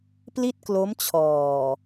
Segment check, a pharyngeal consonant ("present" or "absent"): absent